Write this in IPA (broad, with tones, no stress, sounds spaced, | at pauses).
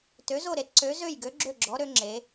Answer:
t ø˧˥ z o˥˧ ɾ e˧˥ t ǀ ø˧˥ z ø˥˧ j ɡ ø˧˥ ɡ͡ǁ ø˥˧ ɡ͡ǁ ɔ˧˥ ɾ ø˧˥ ŋ͡ǁ e˧˥